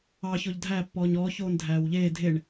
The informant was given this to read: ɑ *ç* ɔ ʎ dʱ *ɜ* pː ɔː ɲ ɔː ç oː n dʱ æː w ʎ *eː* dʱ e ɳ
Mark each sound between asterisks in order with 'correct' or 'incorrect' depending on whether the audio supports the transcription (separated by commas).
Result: correct, incorrect, correct